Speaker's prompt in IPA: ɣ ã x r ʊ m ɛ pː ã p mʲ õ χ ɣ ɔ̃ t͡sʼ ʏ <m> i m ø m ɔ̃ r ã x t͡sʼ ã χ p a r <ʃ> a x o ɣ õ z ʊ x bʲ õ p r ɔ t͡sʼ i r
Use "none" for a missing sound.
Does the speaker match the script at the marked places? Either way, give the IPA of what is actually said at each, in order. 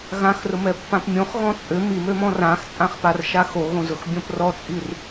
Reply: m, ʃ

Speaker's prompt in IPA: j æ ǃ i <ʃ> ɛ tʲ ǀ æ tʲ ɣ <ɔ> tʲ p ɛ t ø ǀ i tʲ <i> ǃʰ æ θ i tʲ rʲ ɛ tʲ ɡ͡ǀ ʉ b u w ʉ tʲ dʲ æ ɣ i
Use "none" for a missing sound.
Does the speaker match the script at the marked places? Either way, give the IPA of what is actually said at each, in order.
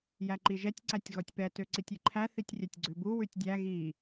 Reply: ʒ, ɔ, i

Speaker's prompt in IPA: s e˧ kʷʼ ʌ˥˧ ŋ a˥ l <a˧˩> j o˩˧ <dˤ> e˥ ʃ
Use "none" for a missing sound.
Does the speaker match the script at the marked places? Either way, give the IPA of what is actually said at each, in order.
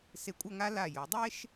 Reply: a˧˩, dˤ

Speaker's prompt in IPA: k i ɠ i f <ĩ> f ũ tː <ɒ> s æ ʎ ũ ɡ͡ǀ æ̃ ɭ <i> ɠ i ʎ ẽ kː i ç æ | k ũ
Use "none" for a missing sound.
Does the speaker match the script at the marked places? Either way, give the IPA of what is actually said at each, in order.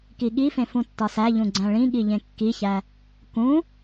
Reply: ẽ, ɒ, ĩ

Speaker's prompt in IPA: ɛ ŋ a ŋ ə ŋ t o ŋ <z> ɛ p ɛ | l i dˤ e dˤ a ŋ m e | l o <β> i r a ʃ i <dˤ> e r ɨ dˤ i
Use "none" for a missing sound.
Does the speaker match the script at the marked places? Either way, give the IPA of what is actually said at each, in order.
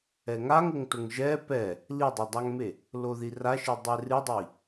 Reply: ʒ, ð, dˤ

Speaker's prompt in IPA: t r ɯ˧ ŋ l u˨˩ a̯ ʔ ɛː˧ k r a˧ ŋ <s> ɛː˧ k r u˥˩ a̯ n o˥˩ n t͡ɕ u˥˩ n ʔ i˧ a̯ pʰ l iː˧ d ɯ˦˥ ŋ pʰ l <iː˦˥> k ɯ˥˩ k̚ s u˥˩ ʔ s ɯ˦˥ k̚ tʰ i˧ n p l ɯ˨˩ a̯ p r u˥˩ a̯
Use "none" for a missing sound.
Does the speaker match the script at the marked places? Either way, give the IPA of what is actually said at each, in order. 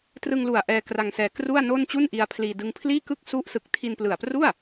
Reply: s, iː˥˩

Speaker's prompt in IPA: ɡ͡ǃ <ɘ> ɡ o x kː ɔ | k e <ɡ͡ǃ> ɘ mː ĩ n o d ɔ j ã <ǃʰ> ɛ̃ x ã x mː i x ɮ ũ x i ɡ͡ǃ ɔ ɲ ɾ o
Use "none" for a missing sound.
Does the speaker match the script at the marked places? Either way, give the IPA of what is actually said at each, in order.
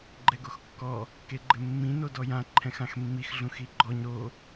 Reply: ɛ, ɡ͡ǃ, ǃʰ

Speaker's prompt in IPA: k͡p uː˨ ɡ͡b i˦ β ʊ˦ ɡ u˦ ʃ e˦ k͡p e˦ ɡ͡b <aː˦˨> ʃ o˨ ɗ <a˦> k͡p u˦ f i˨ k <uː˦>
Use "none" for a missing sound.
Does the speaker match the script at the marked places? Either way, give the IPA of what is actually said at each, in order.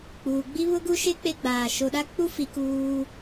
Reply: aː˨, a˦, uː˦

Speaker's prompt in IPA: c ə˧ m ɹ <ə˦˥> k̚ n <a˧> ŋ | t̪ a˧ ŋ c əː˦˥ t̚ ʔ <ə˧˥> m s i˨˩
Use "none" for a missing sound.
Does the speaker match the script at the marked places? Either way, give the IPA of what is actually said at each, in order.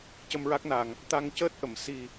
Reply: a˦˥, a˨˩, ə˨˩˨

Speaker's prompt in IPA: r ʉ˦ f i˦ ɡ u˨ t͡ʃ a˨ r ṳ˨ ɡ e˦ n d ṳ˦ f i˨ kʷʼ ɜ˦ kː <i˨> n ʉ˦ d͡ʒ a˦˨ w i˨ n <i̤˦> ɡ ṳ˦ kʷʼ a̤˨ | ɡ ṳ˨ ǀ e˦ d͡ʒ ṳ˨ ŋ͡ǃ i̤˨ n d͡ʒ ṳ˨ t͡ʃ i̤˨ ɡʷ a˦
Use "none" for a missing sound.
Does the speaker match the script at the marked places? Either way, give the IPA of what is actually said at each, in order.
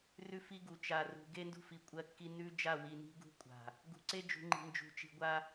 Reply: i˦, i̤˦

